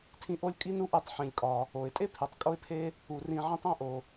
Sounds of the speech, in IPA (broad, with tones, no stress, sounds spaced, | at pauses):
tʰ ĩ˧ ʔ o˥ lʲ kʼ i˥ n u˥ ʔ e˧ tˤ ħ ĩ˩ lʲ kʼ ɒ˩ | o˩ ɪ̯ tʼ e˥ pʰ i˩ tˤ kʼ o˥ ɪ̯ pʰ e˥ | u˩ r ĩ˧ ʕ ĩ˧ tˤ æ̃˥ ʔ o˩